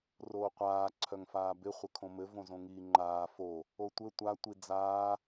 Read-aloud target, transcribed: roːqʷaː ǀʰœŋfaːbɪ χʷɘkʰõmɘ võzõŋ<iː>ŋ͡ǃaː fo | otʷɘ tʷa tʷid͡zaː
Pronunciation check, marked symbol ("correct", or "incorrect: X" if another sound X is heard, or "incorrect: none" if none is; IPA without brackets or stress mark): correct